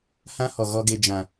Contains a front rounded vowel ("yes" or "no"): no